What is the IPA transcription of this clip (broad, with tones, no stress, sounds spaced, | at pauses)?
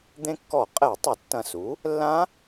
d̪ ẽ˧ kː ɔ˧˩˧ qʼ ɛ˧˩˧ tˤ ɐ˧˩˧ tː ɐ̃˧˩ s u˩˥ | lː ã˦˥